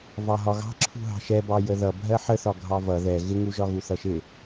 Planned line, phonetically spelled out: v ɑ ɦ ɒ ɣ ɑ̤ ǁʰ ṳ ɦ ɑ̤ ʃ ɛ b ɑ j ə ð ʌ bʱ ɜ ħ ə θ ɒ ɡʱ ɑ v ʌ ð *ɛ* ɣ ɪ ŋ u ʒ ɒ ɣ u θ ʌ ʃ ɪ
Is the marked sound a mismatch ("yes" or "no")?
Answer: no